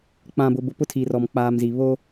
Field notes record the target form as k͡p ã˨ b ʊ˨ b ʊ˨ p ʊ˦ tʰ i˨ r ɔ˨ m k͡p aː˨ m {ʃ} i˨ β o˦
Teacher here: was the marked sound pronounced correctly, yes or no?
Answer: no